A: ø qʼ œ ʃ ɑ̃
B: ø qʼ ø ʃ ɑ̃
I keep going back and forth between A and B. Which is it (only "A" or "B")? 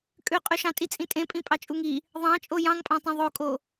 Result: B